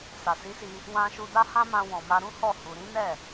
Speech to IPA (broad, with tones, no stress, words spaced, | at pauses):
sa˨si˨˦si˧ | wã˧ ʃu˧da˦hã˦mã˧ wɔ̃˨ma˧ɾũ˦hɔ˦˨ hu˧ ɾĩ˦nɛ˦˨